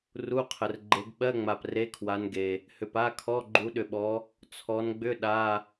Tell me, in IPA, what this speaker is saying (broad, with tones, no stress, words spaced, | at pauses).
ru˧˥˧qʰə˨r ɡ͡ǃe˨˦ɡɓɜ˧˥˧ŋ͡ma˨p re˧˥˧kʰwa˨˦nɡe˨ | hʏ˨pa˧˥˧kʰɔ˧˥˧ ɡ͡ǃu˨˦ɗʏ˨ɓɔ˨˦ | t͡sʰɔ˨˦nɡ͡bʏ˧˥˧ ɗa˧˥˧